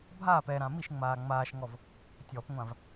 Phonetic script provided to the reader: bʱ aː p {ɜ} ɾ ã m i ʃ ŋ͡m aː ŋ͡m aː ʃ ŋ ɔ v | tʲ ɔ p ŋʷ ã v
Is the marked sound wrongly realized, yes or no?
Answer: yes